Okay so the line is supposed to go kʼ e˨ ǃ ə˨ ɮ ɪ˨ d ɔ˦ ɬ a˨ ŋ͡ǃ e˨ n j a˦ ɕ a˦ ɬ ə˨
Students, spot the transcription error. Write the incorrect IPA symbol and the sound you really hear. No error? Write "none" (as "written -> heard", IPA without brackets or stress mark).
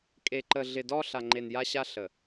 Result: none